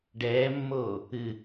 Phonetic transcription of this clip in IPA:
ɖ ɛː mː oː | ɨ

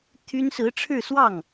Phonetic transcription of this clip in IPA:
t̪ʰ y˥ n s ɹ̩˧˥ ʈ͡ʂʰ ɻ̩˥˧ s w ɑ˥˩ ŋ

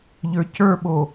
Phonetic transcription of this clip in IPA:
ʎ ə˞ c ə˞ ɓ o

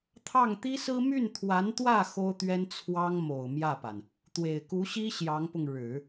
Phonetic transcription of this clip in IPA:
t̪ʰ ɑ˥˩ ŋ t̪ i˥ s ɹ̩˥ m y˥˩ n t̪ʰ w a˧˥ n t̪ w ä˥˩ x o˥ ʊ̯ t̪ ɥ ɛ˥ n t͡sʰ w ɑ˥ ŋ m o˨˩ ʊ̯ m j ä˥˩ p a˩ n | t̪ w e˨˩ ɪ̯ k u˧˥ ɕ i˥ ɕ j ɑ˧˥ ŋ p ʊ˧ ŋ ɻ ɻ̩˨˩˦

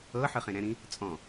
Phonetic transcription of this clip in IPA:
ɤ ħ ɯ χ ẽ ɾ ɛ̃ ɾ ĩ | t͡sʼ ɔ̃

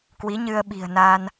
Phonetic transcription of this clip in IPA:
k w i˨˦ ɲ ɨ˧ ə̯ ɓ i̤˨˩ ə̯ n aː˧ n

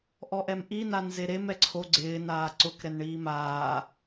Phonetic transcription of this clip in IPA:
ʔ ɔ ʔ ɛ m ʔ i n a n z e ɾ e m ɛ ǀʰ o ɡ͡ǀ ɪː n aː ǀ ʊ k ɾ ɛ n ɳ iː m aː

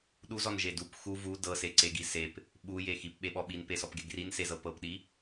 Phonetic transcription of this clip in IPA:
ɗ u z ɔ n ʒ e d u p x u v u d ɤ s e ǀ e ɡ i s e p | ɓ u j e x i p ɓ e ɓ ɔ ɓ i n p e s ɔ p ɡ e ɡ r i n s e z ɤ p ɤ p ɗ i

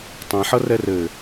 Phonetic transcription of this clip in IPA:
tˤ ɛ̃ ħ ʌ r ɛ r ɘ

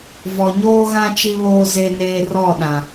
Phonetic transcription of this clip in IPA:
v ɔ˨ ɲ oː˦ ɣ ã˦ t͡ʃ i˦ β oː˦ z e˦ n eː˦ r ɔ˦˨ ɗ ã˨

